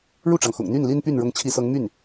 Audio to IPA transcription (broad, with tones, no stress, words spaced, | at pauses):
ɻu˥˩ʈ͡ʂɑ˩ŋxʊ̰˨˩ŋ n̪y˥˩nli˥npy˥˩n ɻʊ˧˥ŋt͡ɕʰi˧˥sɤ˧˥ŋmy˥˩n